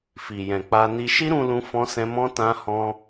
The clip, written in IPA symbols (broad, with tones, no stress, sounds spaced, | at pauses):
f i˨ j ɛ̃˨ k͡p a˧ n i˧ ʃ i˦ ɾ ũ˧ l ũ˧ f ɔ̃˧ s ɛ̃˧ m ɔ̃˦ t ã˦ h ɔ̃˦